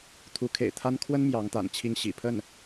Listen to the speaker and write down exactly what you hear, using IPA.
t̪ʰ u˧˥ kʰ ḛ˨˩ ɪ̯ t̪ʰ a˥ n kʰ w ə˥ n m j ɑ˧˥ ŋ t̪ a̰˨˩ n t͡ɕʰ i˥˩ ŋ ɕ ḭ˨˩ pʰ ə˥˩ n

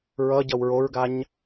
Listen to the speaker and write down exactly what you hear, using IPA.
ɹ ʌ ɟ ʌ w ɹ o ɹ ɡ a ɲ

